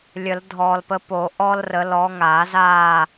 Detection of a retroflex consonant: absent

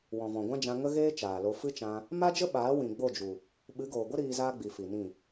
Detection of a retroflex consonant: absent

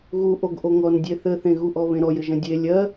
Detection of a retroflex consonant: absent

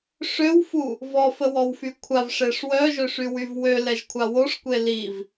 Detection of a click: absent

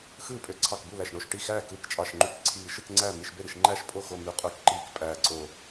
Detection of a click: present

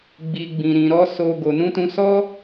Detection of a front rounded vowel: absent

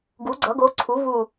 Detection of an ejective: absent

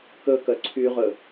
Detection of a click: present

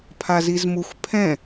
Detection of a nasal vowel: present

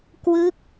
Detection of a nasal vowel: absent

